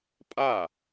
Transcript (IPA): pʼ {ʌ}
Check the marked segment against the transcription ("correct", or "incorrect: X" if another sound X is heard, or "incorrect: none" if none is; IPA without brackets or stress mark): incorrect: a